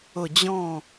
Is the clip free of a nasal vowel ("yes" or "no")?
no